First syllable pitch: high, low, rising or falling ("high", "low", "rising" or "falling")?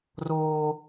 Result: low